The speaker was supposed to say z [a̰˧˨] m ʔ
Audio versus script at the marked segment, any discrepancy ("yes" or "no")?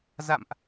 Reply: no